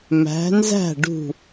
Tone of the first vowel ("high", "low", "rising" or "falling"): rising